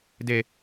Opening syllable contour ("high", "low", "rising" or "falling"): low